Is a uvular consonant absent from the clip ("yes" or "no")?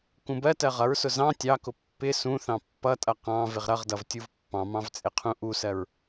no